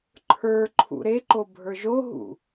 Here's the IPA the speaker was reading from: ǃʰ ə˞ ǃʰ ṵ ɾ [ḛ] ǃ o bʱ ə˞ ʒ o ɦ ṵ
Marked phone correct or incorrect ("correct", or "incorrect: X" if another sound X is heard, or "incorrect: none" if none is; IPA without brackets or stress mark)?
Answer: incorrect: e